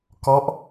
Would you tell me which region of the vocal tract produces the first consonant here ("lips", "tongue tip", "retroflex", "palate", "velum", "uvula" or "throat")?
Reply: velum